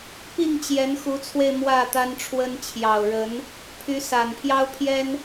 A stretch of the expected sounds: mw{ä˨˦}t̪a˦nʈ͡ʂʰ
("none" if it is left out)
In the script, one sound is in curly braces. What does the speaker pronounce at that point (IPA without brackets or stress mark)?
ä˥˨